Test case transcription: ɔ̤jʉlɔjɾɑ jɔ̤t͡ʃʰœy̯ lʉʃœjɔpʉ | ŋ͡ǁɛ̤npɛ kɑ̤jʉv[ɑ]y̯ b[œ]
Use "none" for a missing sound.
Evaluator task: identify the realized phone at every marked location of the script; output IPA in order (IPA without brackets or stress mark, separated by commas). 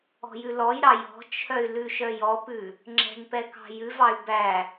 ɑ, æ